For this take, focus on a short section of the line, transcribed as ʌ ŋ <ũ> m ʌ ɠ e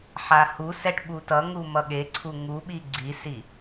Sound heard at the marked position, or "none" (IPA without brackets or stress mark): u